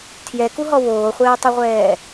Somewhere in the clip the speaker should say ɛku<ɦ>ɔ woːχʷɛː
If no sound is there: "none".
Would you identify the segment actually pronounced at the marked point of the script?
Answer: ɦ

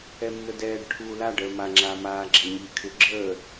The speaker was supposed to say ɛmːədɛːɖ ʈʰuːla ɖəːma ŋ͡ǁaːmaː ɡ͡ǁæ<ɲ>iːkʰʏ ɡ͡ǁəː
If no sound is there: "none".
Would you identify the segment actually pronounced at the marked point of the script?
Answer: ɲ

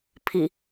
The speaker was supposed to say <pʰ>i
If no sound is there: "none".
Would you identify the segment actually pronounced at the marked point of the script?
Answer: pʰ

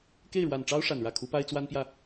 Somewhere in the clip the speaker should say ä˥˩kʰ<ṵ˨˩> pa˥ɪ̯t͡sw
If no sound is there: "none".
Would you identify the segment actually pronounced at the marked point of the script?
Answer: u˧˥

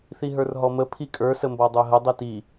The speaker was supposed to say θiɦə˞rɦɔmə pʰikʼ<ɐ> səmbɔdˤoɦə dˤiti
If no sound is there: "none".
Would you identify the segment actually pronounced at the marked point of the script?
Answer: ə˞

